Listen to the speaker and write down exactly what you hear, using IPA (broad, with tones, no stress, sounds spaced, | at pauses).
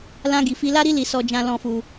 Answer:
l ã˦ ɡ i˧ f i˦ l a˦ ɾ i˦ l i˧ s ɔ˧ d͡ʒ ã˧ l ɔ̃˧ f u˧